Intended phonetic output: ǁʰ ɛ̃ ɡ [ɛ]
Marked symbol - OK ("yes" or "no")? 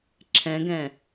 no